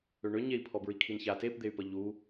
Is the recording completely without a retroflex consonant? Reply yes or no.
no